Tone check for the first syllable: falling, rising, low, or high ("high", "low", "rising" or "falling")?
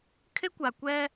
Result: high